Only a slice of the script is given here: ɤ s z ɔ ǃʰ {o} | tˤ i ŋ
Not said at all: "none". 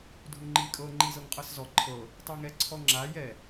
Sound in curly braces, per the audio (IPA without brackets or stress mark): ɤ